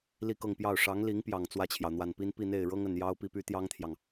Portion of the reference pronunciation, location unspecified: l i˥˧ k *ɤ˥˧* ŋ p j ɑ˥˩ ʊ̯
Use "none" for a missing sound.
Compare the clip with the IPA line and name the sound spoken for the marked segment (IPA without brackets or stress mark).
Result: ɤ˥˧